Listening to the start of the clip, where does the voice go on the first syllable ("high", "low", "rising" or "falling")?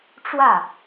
falling